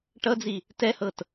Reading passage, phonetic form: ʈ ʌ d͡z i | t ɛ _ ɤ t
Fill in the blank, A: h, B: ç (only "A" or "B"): A